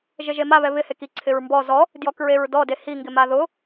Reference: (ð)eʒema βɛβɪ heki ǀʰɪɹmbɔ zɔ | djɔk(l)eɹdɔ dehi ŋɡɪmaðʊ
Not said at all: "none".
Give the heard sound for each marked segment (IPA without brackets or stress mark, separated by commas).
ʒ, ɹ